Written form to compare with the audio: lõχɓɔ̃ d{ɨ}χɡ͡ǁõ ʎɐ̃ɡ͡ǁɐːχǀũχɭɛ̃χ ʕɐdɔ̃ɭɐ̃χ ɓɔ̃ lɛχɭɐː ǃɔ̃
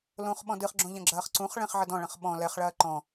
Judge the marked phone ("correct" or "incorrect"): correct